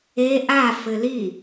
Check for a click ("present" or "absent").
absent